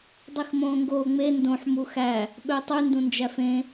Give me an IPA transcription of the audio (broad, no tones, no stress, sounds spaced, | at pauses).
dˤ i x m õː ŋ ɡ oː ŋ͡m e n d õ ħ m u x æ | ɓ ø tˤ y n d ũ n d͡ʒ æ f ẽ